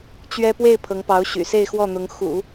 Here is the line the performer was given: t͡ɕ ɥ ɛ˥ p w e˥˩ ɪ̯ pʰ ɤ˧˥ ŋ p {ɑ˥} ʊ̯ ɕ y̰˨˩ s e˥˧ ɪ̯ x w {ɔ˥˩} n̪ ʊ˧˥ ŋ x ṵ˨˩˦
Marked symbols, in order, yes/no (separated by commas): no, yes